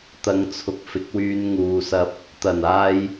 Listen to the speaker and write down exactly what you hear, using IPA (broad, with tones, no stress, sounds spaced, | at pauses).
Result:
t̪ ɐ˨˧ ŋ t͡sʰ ʊ˨ k̚ f ɪ˨˥ k̚ w yː˧ n ŋ uː˨ s ɐ˧ p̚ | t̪ ɐ˨˩ n aː˧ j